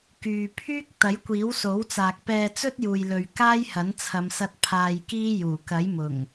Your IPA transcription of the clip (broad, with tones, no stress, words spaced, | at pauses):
kyː˨pʰyː˥k̚ t̪ɐ˨˥jkʷiː˨˥wso˨˥wt͡saː˨k̚ pɛː˧t͡sɵ˥t̚juː˨jlɵ˨ɥ kaː˥jhɐ˨˥nt͡sʰɐ˨˧msɐ˧t̚ pʰaː˧jkiː˥ juː˨˩kɐ˨˥jmʊ˨˩ŋ